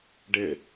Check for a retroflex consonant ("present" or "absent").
present